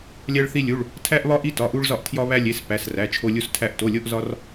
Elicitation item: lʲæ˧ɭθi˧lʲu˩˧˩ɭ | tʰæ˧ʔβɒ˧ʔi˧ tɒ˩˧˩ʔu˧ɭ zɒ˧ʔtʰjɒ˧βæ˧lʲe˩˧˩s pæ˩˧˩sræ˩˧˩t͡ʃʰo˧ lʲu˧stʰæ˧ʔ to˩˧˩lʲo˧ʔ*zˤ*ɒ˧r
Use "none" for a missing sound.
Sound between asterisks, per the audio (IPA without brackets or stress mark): z